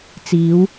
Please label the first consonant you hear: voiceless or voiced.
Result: voiceless